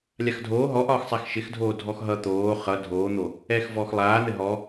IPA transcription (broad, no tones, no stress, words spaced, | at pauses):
lʲaxdʱoː ɦɔʔɒːxsˤax ʃɪxdʱoː dʱɔxɦʌ t̪oː χʌ dʱoːn̪o | ɛːxvɔːxlˠaːn̪ɘ ɦɔ